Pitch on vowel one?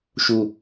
low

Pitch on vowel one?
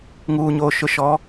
low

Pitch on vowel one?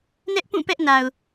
high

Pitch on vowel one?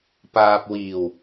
low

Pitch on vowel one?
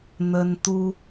high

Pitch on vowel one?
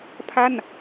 falling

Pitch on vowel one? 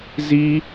high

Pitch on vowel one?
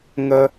high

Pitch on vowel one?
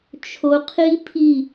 low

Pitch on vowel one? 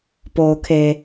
low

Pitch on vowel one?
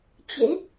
rising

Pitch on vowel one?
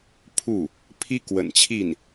falling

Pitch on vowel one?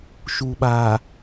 low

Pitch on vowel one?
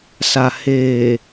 low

